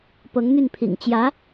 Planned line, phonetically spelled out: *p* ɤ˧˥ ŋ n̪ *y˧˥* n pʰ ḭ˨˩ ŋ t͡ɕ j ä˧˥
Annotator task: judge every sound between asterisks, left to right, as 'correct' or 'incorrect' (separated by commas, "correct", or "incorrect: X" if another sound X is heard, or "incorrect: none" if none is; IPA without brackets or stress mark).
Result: correct, incorrect: y˥˩